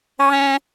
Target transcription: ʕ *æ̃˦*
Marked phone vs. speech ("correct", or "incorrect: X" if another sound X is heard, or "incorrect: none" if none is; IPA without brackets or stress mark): correct